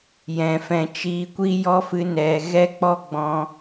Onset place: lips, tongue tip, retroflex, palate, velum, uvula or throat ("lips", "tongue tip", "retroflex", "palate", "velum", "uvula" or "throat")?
palate